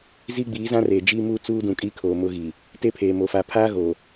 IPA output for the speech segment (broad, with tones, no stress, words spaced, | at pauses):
zi˦ɡ͡biː˨˦zã˦reː˨ d͡ʒiː˦muː˦ t͡suː˦dũ˨kʼi˦kʰoː˨ mʊ˦ɣi˨ | te˦pʰeː˨mo˨ fa˨pʰaː˦ɣo˨